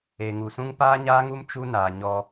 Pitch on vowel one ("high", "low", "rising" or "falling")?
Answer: low